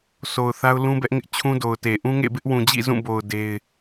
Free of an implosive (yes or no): yes